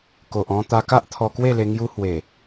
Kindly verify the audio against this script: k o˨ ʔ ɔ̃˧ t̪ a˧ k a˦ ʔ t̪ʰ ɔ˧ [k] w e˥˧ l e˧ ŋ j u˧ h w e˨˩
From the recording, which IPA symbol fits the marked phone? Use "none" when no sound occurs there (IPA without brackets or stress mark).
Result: k